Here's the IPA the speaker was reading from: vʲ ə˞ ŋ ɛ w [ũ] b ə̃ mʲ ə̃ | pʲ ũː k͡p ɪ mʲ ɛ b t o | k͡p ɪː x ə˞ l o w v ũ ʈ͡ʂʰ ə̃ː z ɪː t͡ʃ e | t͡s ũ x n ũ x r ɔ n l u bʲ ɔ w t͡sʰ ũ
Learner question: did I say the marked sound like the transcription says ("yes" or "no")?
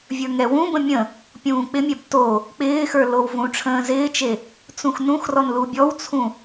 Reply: yes